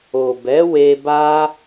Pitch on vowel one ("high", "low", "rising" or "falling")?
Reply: low